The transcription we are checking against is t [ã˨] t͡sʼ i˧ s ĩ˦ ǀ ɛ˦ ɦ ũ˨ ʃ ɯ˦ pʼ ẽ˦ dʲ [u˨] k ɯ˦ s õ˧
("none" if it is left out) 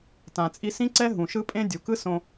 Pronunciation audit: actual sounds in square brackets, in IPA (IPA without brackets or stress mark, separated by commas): ã˨, u˨